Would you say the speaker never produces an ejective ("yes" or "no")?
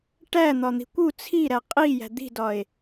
no